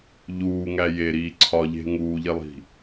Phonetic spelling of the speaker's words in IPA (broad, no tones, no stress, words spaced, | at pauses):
ʎuːŋæ jeɾiː ǀʰɒʎe̤ ŋuːʎelˠi̤